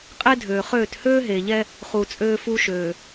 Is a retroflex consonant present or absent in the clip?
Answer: absent